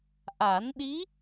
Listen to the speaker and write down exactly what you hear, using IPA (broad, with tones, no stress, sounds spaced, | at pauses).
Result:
ʔ a˨˩˦ n ɗ i˧˥